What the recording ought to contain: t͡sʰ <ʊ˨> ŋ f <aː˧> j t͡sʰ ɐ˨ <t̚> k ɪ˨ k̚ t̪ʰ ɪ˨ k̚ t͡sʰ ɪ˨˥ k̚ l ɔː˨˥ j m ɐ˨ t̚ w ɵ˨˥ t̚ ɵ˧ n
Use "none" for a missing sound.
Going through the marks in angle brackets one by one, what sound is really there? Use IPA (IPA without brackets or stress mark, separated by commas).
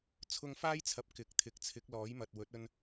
ʊ˧, aː˥, p̚